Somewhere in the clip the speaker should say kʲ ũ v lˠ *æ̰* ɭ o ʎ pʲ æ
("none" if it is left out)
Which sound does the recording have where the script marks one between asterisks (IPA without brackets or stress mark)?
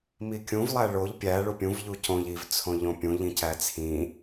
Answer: æ